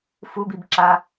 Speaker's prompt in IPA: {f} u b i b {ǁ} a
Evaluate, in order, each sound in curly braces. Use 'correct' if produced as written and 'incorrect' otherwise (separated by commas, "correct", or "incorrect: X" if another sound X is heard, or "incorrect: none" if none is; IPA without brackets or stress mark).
correct, correct